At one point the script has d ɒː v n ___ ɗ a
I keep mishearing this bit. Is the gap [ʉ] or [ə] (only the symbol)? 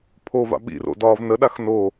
ə